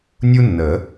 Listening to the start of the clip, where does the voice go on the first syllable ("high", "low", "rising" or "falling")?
high